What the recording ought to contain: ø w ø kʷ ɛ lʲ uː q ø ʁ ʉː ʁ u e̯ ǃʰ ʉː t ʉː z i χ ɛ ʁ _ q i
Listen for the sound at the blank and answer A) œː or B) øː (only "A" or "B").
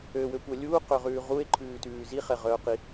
A